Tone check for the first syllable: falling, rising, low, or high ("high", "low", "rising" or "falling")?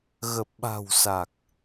low